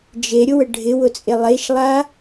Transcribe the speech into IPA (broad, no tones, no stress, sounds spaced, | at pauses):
d͡ʒ e ɾʲ ʊ w ə ɖʱ ɪ w ʊ t͡sʼ e lˠ e ʃ lˠ a